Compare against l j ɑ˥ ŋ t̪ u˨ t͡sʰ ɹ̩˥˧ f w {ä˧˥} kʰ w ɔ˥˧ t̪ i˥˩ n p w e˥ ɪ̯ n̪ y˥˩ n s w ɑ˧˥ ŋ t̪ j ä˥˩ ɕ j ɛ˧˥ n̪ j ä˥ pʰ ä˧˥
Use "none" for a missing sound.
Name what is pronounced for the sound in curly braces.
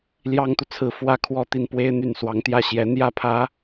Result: ä˥˧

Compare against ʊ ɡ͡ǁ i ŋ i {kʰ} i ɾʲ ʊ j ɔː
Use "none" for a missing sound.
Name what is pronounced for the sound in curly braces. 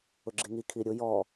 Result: kʰ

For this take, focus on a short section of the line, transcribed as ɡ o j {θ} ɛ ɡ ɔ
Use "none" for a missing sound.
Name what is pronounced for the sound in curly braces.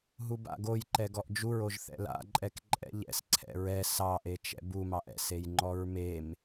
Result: ǃ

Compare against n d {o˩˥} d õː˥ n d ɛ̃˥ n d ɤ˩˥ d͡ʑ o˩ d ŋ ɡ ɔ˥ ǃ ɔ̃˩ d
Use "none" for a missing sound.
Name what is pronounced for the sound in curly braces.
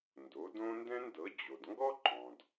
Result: o˩˥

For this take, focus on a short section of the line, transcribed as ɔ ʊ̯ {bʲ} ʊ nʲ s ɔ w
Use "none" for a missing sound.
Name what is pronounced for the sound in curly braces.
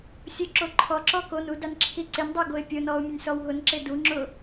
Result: mʲ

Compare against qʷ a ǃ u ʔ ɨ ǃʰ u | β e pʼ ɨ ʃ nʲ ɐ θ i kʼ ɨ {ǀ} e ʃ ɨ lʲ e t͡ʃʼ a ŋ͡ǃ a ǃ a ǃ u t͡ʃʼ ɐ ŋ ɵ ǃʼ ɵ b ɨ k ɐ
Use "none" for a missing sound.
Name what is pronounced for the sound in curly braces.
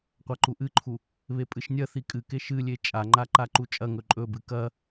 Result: k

